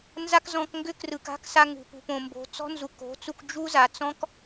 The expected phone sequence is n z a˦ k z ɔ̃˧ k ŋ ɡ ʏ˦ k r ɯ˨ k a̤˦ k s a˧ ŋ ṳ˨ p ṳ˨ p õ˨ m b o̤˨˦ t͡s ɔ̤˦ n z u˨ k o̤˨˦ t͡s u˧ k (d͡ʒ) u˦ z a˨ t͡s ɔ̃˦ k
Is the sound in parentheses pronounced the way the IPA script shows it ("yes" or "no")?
yes